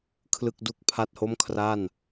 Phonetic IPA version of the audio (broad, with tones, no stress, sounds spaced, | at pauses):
kʰ l ɯ˥˩ k̚ d u˥˩ k̚ pʰ a˥˩ t̚ h o˥˩ m kʰ r a˥˩ n